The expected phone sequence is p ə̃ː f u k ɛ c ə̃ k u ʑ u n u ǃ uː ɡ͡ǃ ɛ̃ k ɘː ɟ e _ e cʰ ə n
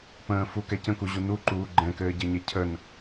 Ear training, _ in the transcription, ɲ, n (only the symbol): ɲ